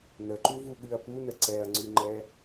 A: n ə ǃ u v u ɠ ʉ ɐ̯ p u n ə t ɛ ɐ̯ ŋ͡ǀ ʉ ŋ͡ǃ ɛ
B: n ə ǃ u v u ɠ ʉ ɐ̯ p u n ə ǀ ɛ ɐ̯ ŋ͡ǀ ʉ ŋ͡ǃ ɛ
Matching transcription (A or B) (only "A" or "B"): B